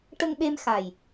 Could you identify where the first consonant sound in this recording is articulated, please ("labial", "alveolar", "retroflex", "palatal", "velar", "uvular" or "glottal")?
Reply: retroflex